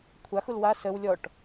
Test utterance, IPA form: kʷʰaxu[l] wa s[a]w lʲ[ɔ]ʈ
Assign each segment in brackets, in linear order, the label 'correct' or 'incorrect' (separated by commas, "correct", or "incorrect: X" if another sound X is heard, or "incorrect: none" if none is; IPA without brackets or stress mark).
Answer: correct, incorrect: ə, correct